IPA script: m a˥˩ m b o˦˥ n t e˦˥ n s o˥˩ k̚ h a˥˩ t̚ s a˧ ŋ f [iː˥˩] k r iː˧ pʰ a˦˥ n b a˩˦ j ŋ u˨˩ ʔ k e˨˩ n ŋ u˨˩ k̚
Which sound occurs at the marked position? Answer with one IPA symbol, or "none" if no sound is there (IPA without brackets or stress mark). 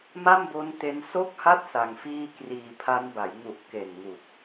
iː˥˩